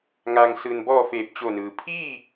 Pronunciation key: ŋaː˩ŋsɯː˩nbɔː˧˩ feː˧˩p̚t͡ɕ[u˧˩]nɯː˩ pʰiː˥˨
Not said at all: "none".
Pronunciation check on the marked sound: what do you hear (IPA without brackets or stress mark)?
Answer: o˧˩